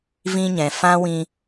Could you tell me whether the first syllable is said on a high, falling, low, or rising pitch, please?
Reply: high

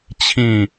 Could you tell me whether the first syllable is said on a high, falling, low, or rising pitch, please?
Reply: falling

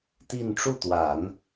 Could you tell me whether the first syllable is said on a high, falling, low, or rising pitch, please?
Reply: falling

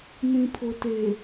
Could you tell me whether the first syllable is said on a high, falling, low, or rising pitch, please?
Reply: low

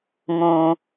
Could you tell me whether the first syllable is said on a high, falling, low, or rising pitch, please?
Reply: low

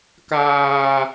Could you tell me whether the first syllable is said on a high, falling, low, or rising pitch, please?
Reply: low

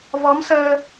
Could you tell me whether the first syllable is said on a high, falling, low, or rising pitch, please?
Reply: rising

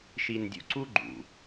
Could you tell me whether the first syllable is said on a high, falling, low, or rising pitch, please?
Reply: low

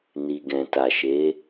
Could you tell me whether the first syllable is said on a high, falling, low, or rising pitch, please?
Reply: low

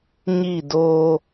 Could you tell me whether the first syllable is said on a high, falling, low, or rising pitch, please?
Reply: falling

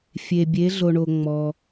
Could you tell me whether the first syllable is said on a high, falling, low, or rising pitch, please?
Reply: low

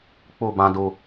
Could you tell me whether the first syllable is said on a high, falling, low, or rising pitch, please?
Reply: falling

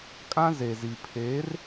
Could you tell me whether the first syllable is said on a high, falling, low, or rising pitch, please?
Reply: high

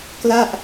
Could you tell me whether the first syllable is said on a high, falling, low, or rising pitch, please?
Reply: falling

